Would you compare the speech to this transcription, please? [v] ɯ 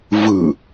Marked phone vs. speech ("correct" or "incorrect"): correct